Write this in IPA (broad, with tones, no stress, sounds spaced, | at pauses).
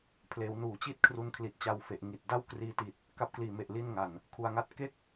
pʰ l eː˩˦ w n uː˩˦ t͡ɕ i˥˩ t̚ kʰ r u˧ n kʰ l i˨˩ t̚ t͡ɕ a˧ w f e˨˩ ʔ ŋ i˨˩ t̚ d a˥˩ w k r iː˧ t i˨˩ t̚ | k a˦˥ p̚ k l iː˨˩ m e˨˩ ʔ l i˥˩ n ŋ a˨˩ n | kʰ u˨˩ a̯ ŋ a˦˥ t̚ k e˥˩ k̚